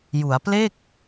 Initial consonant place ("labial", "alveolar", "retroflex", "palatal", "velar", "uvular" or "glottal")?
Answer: palatal